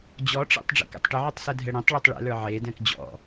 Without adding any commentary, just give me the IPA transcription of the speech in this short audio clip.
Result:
d͡ʑ ɔ ʈ͡ʂ ḛ tˤ ɖ͡ʐ ɛ̰ k ɛ̰ tˤ ʈ ɪ ʕ y tˤ s ɛ dʱ ɛ ɽ ɛ̃ tˤ ɭ e tˤ ɭ ɛ̰ l ə˞ ʕ e d ɛ̃ k d͡ʑ ɔ̰

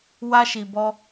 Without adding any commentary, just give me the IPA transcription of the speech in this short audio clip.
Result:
w a˧ ʃ i˨ b ɔ˧

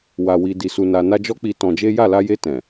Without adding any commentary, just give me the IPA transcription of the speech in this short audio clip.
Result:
w a˧ w i˧ d i˧ s u˧ n a˧ n a˦ d͡ʒ ɔ˦ k͡p i˧ t ɔ̃˧ d͡ʒ e˦ j a˦˨ l a˧ j e˧ t ɛ̃˨

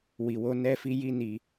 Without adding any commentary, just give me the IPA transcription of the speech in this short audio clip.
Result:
w i˨ w o˧ n ɛ˧ f i˧ j i˦ n i˧

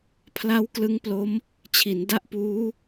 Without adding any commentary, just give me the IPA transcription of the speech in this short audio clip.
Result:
pʰ l a˦˥ w k l ɯ˦˥ ŋ p l o˦˥ m | t͡ɕʰ i˩˦ n d a˦˥ ʔ p uː˦˥

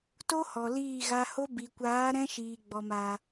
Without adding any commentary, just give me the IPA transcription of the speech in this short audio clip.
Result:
t o˦ h ɔ˨ l iː˦˨ ɣ a˧ h o˦ b i˨ kʷ aː˨˦ ɾ ɛ̃˦ ʃ iː˨ ɡ͡b ɔ˨ m a˨

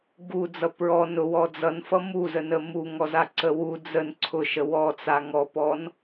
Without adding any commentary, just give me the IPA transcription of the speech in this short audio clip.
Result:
ɡ u d͡z ʌ p ɹ ɔ n ʊ w ɔ d͡z ʌ n f ʌ m u z ə n ə m u ŋ ɔ z a ǀ ə w u d͡z ə n ǀʰ ʊ ʃ ə w ɔ t͡s a ŋ ɔ p ɔ n

